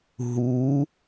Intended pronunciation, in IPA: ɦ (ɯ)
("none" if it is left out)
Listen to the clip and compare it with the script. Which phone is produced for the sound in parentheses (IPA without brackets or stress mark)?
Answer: u